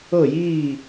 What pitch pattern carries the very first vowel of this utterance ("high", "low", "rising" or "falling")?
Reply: falling